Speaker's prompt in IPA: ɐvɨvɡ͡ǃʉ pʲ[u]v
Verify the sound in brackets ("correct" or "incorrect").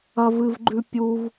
correct